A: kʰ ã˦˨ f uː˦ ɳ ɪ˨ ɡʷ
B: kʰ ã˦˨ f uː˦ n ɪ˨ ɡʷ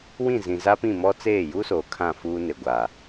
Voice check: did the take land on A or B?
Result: B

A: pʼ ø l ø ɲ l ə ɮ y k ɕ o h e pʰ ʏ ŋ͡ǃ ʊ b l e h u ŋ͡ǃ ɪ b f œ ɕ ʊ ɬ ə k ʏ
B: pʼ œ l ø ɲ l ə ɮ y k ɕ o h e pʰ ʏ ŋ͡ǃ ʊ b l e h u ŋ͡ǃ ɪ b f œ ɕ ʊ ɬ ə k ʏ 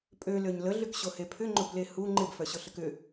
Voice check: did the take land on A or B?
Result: A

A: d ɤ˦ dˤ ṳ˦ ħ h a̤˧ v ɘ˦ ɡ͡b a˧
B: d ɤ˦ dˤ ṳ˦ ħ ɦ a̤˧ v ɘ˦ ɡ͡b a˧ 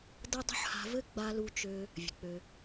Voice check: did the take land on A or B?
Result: A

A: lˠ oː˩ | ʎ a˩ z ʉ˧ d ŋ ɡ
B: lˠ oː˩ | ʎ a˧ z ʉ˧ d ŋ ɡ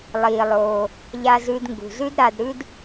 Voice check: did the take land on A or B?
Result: B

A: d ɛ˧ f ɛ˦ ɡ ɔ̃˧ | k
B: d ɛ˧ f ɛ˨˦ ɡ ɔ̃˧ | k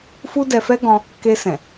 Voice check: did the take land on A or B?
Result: A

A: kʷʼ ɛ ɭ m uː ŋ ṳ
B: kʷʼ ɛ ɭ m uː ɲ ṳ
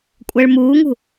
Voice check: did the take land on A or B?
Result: A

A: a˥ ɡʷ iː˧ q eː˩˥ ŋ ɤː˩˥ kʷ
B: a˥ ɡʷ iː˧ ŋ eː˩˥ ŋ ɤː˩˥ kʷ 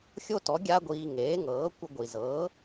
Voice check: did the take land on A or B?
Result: B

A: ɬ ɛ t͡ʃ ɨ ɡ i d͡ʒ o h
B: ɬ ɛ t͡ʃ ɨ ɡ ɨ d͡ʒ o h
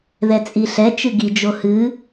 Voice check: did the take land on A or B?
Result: A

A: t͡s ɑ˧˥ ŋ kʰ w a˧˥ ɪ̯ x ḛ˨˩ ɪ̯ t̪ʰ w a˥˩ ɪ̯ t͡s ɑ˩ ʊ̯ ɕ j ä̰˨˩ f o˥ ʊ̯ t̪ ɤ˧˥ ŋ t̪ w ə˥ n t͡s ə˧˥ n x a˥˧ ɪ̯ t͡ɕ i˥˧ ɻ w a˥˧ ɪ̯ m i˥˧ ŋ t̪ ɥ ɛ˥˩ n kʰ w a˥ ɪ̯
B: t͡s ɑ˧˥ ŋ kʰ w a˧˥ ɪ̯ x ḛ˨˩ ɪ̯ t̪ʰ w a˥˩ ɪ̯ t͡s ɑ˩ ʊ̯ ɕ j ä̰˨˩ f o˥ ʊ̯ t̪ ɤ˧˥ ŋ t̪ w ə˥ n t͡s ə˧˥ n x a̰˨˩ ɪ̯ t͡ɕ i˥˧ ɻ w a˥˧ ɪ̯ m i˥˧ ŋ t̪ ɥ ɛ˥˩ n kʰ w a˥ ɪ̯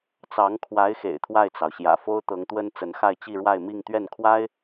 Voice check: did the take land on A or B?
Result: A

